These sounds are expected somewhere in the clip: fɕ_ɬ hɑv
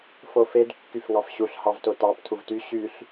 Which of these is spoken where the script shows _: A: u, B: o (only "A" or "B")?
A